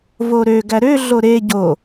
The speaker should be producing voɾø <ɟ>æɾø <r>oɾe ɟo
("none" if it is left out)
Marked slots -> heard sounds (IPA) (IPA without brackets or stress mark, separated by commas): ɡ, ɮ